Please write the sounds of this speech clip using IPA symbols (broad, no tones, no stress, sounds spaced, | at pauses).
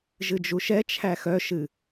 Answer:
ʒ ɨ d͡ʒ u ʃ ɛ t͡ʃʰ æ x œ ʃ ɨ